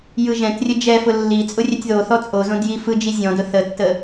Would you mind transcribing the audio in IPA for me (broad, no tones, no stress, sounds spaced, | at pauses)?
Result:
j ɯ ʒ ɛ̃ t rʲ ə d͡ʒ ɛ f ʊ lː i t͡sʼ ʊ rʲ ɛ tʲ ð o θ ɔ t͡sʼ o z õ d j i f ɯ d͡ʒ i zʲ ɔ̃ d ʊ θ ə tː ə